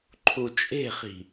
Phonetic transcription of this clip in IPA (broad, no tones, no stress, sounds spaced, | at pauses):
ǃʰ u t͡ʃʼ e̤ χ i̤